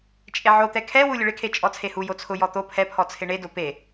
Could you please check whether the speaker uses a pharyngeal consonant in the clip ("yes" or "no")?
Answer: yes